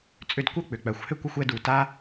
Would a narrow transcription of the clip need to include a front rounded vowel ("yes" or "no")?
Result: yes